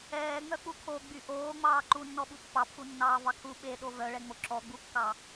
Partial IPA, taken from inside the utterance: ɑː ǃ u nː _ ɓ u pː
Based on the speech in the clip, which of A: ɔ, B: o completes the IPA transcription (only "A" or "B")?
A